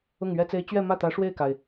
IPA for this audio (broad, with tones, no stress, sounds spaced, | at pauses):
ʊ˥˩ ŋ ɥ ɛ˥ t͡s e˥ ɪ̯ t͡ɕ ɥ ɛ˥˧ m ä˥˩ t̪ ä˧˥ ʂ w e˥˩ ɪ̯ k a˩ ɪ̯